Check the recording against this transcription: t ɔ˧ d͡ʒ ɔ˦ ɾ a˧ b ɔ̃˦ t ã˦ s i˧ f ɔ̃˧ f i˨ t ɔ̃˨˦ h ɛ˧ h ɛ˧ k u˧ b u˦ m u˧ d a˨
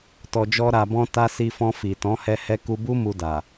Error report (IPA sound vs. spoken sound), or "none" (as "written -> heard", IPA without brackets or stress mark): ã˦ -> a˦